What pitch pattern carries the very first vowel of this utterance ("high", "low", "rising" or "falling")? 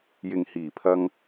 low